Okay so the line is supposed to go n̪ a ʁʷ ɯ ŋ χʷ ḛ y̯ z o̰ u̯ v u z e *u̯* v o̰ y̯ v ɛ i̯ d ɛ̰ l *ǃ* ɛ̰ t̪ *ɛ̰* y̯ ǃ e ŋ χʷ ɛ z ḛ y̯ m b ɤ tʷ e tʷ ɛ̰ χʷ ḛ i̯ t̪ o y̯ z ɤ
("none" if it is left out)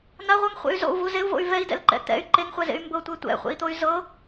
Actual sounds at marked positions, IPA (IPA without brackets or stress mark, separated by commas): u̯, ǃ, ɛ̰